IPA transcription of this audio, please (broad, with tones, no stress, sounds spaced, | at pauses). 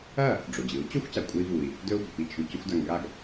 ɐ˥˩ | ɖ͡ʐ o˩ d͡ʑ ɨ˩˥ u̯ t͡ɕ o˥ xʷ c a˩ kʷʼ e˧ i̯ v u˩ i̯ | d ɵ˥ u̯ b ɵ˩ p i˥˩ t͡ʃʰ ʉ˧ c o˥ xʷ d a˧ ŋ ɡ a˥˩ ɡ